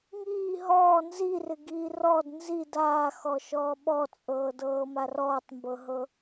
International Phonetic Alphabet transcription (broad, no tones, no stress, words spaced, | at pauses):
ŋiː ɦɔː nzirɪɡiː rɔd nzi daːxɔːʃɔː ɓɔt͡sʼɤːdɤːma rɔːtˤmbɤɦɤ